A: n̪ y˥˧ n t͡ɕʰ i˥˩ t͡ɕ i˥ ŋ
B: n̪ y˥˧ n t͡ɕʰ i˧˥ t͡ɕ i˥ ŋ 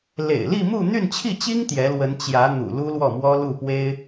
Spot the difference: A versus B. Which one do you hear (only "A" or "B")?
A